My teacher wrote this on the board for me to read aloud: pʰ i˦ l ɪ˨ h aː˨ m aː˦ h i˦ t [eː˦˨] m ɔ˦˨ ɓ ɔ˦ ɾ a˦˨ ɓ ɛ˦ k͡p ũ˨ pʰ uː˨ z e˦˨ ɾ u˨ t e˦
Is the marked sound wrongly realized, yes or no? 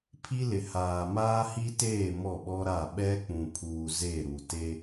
no